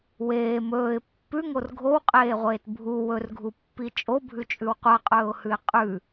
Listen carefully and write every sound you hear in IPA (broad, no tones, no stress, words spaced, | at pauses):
weː mɵːɪ̯ pːʉŋor ɡʱowqʼeːʁʷeːt bʱu wɵrɡʱupːi t͡ʃʼobʱʉt͡ʃʼʉw qʷaqʼɵːʊ̯hʉɪ̯ qʼʉ